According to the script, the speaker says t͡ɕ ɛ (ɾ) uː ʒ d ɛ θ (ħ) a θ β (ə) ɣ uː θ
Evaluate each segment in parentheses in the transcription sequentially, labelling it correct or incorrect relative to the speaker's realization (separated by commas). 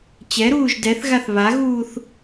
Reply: correct, incorrect, incorrect